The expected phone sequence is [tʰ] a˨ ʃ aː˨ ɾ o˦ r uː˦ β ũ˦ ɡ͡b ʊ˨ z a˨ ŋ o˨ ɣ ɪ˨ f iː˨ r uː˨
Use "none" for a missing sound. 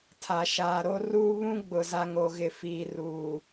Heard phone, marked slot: tʰ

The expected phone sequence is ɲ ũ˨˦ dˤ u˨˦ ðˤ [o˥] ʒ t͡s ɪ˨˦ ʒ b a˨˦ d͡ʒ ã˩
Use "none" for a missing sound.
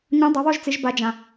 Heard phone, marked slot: o˥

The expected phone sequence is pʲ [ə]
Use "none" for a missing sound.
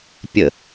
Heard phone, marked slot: ə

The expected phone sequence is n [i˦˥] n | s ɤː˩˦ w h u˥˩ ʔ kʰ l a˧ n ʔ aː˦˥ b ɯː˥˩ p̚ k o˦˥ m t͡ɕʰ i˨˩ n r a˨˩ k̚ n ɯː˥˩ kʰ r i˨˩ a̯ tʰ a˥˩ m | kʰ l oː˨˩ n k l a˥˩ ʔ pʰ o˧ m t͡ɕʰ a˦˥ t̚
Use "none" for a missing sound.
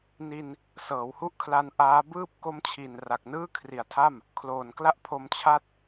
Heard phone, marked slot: i˧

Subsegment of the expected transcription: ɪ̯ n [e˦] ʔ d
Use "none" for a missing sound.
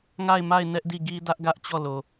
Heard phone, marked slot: ɛ˦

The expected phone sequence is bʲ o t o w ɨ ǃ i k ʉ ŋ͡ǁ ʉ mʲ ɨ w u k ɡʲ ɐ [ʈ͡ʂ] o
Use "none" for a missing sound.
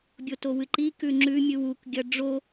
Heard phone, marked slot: ɖ͡ʐ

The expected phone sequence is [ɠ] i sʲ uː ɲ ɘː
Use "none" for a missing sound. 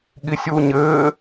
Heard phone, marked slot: ɠ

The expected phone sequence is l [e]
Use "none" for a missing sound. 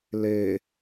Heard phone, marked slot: e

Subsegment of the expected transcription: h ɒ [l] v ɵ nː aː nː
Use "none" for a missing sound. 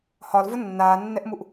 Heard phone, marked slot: l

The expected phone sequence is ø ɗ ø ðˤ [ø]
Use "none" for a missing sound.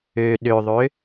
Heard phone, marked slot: ø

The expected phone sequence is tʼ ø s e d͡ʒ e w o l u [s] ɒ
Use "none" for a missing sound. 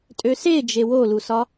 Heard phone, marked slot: s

